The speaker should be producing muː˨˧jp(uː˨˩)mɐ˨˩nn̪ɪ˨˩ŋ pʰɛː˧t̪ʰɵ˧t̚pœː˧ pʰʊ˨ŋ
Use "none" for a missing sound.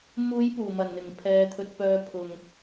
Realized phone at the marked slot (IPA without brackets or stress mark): uː˨˩